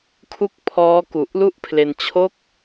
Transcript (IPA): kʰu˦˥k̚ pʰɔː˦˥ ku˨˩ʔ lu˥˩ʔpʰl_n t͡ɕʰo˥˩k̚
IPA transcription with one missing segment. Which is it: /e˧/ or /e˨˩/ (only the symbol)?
e˧